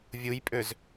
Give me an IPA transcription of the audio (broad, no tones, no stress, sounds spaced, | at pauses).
vʲ u j pʼ ø z